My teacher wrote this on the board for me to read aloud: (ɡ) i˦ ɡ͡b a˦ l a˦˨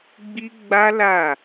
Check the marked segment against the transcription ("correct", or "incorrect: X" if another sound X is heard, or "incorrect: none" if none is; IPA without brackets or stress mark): incorrect: ɡ͡b